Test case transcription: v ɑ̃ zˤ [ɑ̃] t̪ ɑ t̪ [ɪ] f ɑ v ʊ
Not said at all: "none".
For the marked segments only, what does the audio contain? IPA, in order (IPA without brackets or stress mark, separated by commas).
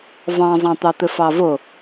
ɑ̃, ɪ